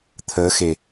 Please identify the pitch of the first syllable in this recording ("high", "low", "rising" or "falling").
rising